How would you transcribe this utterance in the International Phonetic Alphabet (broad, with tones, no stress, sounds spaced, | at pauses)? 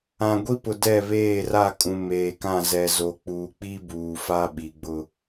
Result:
ã˨ ɡʷ i˦ p ʊ˨ d ɛ˦˨ β eː˦˨ r a˦˨ kʼ ũ˨ m eː˨ k ã˦˨ z ɛ˨ z o˨ k͡p uː˨ k͡p i˦ b uː˨ f a˦ ɓ i˨ ɡ͡b ʊ˦